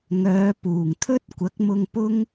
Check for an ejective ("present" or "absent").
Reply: absent